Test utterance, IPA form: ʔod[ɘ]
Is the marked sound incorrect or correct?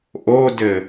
correct